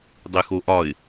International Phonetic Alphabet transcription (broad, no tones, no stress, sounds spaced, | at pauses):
dˤ e x o ʔ ɒ ɪ̯